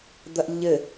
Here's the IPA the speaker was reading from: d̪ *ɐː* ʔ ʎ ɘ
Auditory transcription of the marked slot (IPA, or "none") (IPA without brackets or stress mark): ɐ